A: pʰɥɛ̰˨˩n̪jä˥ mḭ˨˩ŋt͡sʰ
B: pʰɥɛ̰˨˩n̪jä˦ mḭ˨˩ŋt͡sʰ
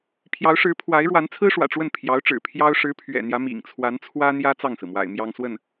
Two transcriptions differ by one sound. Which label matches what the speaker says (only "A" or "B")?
B